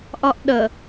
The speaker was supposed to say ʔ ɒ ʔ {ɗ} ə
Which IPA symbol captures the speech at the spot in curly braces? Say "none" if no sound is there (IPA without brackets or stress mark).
ɗ